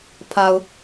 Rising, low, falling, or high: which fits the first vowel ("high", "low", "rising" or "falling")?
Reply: low